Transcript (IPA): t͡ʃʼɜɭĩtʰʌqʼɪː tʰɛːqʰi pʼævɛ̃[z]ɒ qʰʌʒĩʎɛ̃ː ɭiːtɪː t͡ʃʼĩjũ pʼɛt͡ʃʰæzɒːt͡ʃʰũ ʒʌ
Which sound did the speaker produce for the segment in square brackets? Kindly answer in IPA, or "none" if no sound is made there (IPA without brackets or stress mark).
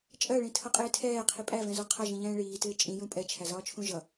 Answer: z